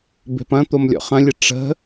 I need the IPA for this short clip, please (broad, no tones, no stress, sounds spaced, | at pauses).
b e̤ p ɐ̃ t̪ o m lʲ ɔ̰ χ ɐ̃ lʲ ə ʈ͡ʂ ə̤